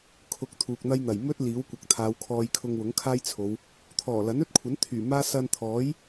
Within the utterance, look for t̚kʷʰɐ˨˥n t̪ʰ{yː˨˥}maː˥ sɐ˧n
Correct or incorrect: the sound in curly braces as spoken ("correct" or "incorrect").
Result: incorrect